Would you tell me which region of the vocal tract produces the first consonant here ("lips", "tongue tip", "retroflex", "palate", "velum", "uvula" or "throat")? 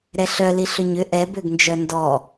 tongue tip